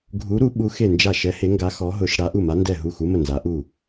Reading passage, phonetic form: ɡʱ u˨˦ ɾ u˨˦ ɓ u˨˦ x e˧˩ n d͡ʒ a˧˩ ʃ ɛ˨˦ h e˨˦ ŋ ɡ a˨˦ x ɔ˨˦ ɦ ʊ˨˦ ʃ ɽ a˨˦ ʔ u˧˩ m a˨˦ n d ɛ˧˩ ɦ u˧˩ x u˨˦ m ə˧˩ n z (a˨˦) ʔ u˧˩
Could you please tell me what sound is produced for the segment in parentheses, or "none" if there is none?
a˨˦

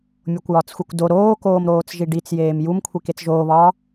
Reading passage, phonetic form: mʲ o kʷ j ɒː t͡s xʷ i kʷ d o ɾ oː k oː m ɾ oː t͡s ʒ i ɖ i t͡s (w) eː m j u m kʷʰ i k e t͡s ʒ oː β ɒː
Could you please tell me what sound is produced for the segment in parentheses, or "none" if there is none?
j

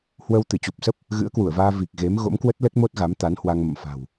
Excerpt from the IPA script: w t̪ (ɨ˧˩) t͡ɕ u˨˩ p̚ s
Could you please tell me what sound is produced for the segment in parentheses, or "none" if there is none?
ɨ˧˩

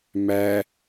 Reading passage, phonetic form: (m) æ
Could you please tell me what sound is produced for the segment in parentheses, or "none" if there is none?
m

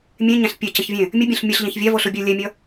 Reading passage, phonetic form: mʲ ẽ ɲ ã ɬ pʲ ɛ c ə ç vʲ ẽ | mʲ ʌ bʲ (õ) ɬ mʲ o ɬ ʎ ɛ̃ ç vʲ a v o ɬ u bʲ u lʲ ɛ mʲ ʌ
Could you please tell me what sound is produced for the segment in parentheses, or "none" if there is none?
õ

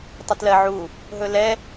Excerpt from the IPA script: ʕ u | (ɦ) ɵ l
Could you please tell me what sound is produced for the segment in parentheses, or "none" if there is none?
ɦ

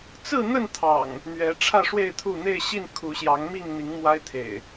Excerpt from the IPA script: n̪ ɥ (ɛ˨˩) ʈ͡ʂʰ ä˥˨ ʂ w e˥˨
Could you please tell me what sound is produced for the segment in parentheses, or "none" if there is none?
ɛ˨˦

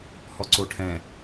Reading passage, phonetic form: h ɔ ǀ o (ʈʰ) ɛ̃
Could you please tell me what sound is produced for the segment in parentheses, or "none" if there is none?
ʈʰ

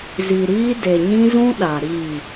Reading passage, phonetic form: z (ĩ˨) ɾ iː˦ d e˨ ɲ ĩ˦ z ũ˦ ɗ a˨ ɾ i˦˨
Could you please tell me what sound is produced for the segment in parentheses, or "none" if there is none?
i˨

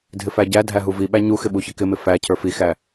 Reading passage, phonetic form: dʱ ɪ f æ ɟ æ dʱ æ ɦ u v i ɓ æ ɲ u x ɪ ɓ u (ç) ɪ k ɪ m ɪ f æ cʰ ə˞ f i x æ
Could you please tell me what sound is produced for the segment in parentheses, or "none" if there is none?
ç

